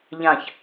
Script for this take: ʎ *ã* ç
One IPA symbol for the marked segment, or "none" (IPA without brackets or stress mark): ã